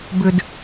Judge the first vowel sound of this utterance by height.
high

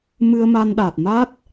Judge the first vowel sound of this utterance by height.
high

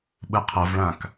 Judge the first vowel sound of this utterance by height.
high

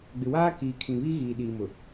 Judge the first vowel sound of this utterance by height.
high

